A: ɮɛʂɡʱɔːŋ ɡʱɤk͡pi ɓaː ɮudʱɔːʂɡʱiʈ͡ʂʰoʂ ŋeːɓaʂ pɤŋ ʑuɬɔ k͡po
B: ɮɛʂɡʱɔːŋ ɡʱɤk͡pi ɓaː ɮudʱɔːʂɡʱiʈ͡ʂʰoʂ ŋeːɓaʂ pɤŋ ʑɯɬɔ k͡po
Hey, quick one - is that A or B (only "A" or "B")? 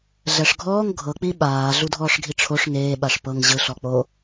B